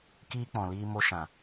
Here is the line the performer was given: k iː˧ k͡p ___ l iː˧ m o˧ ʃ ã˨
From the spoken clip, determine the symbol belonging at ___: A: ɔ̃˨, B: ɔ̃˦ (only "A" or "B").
A